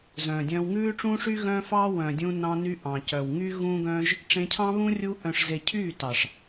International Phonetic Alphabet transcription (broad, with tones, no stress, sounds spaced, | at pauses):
z œ̃ː˨ dʲ œ̃ː˧ w ŋ ʉː˦ ʈ͡ʂ ũː˦ ʂ y˦ ɣ œ̃ː˦ f ɑː˦ w œ̃˨ dʲ ũ˧ n ɑ̃˧ n y˧ ʔ ɑ̃˨ c œ˨ w ŋ yː˦ ɣ ũː˦ ɡ œ̃ː˦ ʒ | ʈ͡ʂ ẽ˧ cʰ ɑ̃˦ β ũ˦ rʲ u˧ ʔ œ̃˨ ʂ z e˨ cʰ yː˦˨ t ɑ˨ ʂ